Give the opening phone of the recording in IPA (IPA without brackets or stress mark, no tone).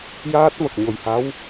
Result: j